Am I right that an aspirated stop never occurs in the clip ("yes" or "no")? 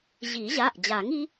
yes